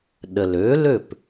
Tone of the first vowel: low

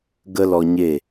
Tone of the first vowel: high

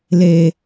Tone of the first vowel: low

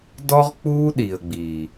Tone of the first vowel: high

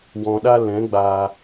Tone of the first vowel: low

